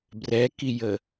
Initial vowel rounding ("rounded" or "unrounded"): unrounded